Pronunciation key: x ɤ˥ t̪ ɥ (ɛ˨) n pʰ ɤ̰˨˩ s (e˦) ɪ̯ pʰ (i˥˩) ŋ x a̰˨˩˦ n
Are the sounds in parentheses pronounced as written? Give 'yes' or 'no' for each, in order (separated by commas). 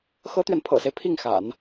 yes, yes, yes